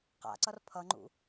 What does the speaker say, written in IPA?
q a̰ ǀ ʌ r pʰ ʌ ŋ͡ǃ ṵ

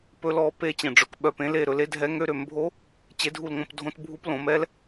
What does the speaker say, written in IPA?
p ɵ˦˥ l ɔ˥˧ p e˥˧ t͡ɕ ẽ˥˧ ɖ͡ʐ ɵ˥˧ k ɓ œ˥˧ p ẽ˦˥ l e˥˧ ɾ ɵ˩˥ l e˩˥ dʱ ɛ˦˥ ŋ ø˦˥ ɾ ø˩˥ m bʱ o˦˥ | t͡ɕ e˦˥ dʱ u˥˧ l ŋ õ˥˧ p dʱ õ˦˥ t bʱ u˦˥ p l õ˩˥ m ɛ˦˥ l

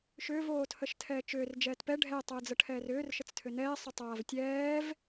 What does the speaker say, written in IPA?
ʃ ʏː v oː tʰ ə ʃ tʰ ɛː t͡ʃ ʏː r d͡ʒ ɛː t p ɛ ɖʱ ɛ tˤ əː d͡z ə ʈʰ ɛː r ʏː r ʃ ə t͡s tʰ ʏ n ɛː sˤ ʏ tˤ aː v tʲ ɛː v

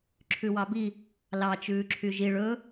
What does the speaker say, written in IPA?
ǁʰ ʉ w ɑ b i | l ɑ t͡ʃ ʉː ǁʰ y ʒ i ɭ ɵ

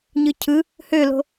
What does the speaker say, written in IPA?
ɲ ɯ cʰ ɯ | h ø l o̤

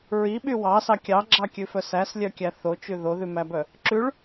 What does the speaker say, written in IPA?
ɹ i ɓ y w ɑ s ɑ kʲ ɑ ɡ͡ǁ ɑ kʲ ʉ f œ s æ s lʲ œ kʲ æ θ o t͡ʃ ʉ ð o ð ʉ m æ b œ | ǁ ʉ ɭ

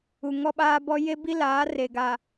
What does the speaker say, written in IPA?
u˨ ŋ ɔ˦ ɓ aː˦ b ɔ˦ j e˦ b i˦ l aː˨˦ r e˨ ɡ a˨

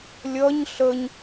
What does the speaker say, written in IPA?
lʲ ʌ ɲ ɬ ə ɲ

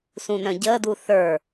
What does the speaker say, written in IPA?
s ũ n œ̃ ɟ əː d u θ ə˞

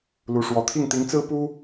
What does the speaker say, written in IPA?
l u˧˥ ʂ w ɔ˧˥ t̪ʰ i˥˩ ŋ t̪ i˧˥ ŋ t͡s ɹ̩˥ p u˥

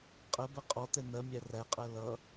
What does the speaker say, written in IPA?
qʼ ɜ b ɜ qʼ ɔ t̪ ɛ n̪ ɜ mʲ æ r æ qʼ ɜ l ʌ

